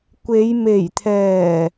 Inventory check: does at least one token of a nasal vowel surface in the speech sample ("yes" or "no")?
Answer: no